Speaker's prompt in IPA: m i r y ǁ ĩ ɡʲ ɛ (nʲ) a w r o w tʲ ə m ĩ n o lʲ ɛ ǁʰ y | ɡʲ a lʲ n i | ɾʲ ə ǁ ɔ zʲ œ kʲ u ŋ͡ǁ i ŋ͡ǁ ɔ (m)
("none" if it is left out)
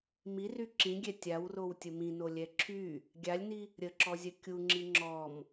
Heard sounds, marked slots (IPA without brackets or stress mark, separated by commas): tʲ, m